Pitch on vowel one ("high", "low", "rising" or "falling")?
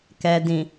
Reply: low